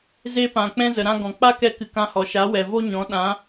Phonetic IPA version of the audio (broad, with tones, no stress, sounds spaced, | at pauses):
z e˦ p ã˨ k͡p ɛ̃˦ z ə˨ ɾ ã˧ ɡ ɔ̃˨ k͡p a˦ k ɛ˧ k ɨ˧ k ã˦ h ɔ˨ ʃ a˨˦ w ɛ˨ v o˦ ɲ ɔ̃˨˦ ɗ ã˨˦